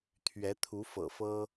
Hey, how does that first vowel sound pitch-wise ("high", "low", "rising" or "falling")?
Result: rising